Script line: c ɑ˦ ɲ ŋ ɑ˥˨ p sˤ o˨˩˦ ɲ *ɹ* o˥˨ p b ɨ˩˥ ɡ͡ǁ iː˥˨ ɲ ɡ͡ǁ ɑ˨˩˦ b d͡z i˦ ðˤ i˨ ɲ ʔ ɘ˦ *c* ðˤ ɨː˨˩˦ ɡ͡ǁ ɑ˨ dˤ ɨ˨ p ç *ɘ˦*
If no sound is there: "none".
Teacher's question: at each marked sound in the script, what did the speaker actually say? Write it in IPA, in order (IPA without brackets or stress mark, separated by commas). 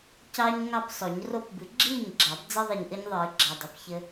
r, ɲ, ɘ˦